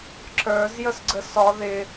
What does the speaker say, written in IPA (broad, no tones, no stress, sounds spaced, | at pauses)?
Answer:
ǁ ə˞ z j ə s ɡ͡ǀ ə s ɒ ð ɪ